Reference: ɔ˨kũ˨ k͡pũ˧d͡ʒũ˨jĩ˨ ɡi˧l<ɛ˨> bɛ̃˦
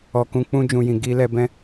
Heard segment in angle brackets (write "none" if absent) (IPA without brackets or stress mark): ɛ˧